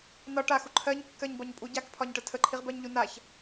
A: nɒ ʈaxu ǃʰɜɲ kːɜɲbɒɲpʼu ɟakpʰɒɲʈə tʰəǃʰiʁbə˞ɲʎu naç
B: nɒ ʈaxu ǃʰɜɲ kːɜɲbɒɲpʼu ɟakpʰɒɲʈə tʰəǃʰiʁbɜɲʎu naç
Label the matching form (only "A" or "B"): B